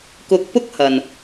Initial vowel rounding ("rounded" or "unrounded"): rounded